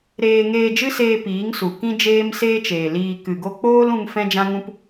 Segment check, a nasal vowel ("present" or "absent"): present